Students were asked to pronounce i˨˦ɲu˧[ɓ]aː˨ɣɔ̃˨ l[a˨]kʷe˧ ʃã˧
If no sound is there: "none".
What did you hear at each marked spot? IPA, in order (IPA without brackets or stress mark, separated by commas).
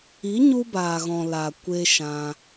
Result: b, a˨